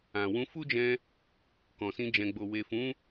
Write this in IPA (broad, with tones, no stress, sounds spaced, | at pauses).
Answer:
ã˨ w ũ˧ f u˦ d͡ʒ ɛ̃˧ | k ɔ̃˨ s ĩ˧ d͡ʒ ɛ̃˨ ɡ͡b o˨ w e˨ f ũ˨˦